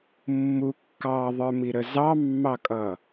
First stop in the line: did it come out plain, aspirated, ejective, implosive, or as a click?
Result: plain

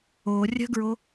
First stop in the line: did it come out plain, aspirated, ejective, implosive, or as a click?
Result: plain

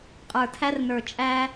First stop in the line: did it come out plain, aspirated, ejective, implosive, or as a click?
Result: ejective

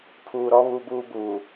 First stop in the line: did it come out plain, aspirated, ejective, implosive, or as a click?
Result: aspirated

